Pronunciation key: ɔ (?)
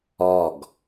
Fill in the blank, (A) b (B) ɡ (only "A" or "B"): B